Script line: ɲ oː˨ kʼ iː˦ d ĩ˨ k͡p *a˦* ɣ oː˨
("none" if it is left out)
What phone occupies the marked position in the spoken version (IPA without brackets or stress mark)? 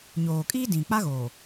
a˦